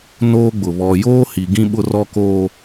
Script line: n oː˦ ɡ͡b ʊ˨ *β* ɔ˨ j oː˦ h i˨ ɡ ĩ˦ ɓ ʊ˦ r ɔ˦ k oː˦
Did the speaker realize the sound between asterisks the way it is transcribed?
yes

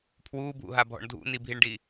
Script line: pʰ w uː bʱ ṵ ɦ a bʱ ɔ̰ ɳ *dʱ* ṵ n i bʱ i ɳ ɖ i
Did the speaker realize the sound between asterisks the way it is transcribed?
yes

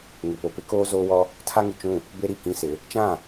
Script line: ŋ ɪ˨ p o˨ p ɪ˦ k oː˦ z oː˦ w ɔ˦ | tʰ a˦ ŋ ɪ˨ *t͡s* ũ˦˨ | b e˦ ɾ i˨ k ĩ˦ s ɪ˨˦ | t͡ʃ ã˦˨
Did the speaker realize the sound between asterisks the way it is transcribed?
no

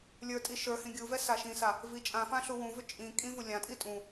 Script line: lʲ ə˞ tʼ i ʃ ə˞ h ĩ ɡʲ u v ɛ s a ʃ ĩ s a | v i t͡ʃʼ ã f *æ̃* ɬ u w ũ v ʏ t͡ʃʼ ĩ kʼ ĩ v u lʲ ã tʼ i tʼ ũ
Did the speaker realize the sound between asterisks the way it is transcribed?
no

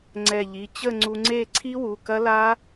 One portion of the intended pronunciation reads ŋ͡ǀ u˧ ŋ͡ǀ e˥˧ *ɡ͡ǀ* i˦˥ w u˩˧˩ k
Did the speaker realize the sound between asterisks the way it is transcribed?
no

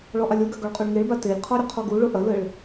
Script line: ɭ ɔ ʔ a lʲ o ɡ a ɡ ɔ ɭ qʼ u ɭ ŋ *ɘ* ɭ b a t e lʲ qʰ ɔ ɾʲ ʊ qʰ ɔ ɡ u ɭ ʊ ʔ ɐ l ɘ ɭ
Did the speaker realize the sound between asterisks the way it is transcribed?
no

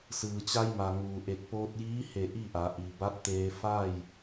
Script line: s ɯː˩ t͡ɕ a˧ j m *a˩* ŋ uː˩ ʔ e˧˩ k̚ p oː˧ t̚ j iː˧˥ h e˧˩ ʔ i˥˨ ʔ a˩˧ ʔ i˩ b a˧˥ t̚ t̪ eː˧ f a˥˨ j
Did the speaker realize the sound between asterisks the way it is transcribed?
yes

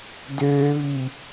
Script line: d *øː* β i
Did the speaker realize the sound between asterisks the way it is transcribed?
yes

